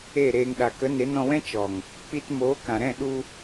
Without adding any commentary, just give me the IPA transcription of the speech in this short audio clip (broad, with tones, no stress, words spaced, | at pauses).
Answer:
e˦˨ɾeː˧ŋ ɗa˨kə˨˦ ne˨˦nɔ̃˧wɛ̃˦ t͡ʃɔ˨ŋ | k͡pi˧tmoː˨˦ kã˨ɾɛ̃˦˨ɗu˧